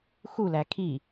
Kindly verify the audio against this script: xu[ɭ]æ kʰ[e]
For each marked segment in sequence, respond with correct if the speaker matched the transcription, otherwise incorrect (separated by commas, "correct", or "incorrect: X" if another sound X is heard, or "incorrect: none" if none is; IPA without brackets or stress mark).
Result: incorrect: l, incorrect: i